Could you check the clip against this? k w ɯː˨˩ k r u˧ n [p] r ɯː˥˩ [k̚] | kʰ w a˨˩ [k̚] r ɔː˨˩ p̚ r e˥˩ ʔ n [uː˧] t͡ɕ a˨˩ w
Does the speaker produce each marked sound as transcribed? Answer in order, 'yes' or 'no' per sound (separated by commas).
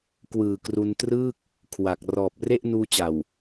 no, yes, yes, yes